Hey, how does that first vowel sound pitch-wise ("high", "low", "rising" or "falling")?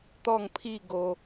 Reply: falling